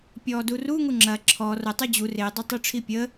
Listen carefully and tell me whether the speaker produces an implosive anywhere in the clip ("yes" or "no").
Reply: no